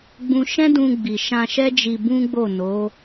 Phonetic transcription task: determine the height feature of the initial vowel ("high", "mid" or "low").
high